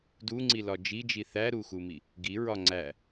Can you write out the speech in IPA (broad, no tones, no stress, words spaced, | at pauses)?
duŋ͡ǀilɒ d͡ʒid͡ʒi θæɾuxumi | ɡiɹɒ ŋ͡ǀæ